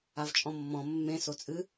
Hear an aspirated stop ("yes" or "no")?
no